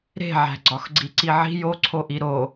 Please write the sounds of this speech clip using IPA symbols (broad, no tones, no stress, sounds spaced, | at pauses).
ɾ e̤ ʕ æ̤ ɡ͡ǀ ɒ x ɡ͡ǀ i ǀ i ʕ i̤ j o ǀʰ o ʔ i ɾ o